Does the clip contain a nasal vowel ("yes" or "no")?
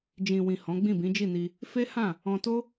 yes